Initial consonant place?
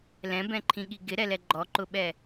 alveolar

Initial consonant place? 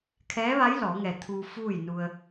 velar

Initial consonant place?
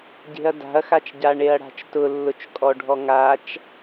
palatal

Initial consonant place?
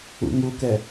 velar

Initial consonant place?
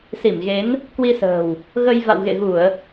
alveolar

